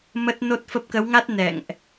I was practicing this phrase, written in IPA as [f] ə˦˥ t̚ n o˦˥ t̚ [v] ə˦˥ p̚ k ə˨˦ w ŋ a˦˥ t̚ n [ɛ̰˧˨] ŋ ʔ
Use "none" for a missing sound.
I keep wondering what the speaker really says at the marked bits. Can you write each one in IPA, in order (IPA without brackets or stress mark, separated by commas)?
m, f, ɛ̰˧˨